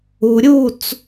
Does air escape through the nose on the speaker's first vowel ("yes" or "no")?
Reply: no